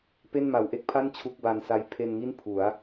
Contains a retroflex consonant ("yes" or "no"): no